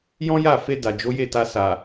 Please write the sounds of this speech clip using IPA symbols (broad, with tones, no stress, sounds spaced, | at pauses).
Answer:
j ɔ̃˦ j a˦˨ f e˧ d a˨ d͡ʒ o˨˦ j e˦˨ t a˧ s a˨